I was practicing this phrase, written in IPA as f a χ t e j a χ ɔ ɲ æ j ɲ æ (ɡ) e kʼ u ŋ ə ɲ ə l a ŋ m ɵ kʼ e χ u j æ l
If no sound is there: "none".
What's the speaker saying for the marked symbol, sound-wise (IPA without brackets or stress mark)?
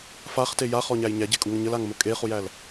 ɟ